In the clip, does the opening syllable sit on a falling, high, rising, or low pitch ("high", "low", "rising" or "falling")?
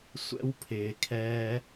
high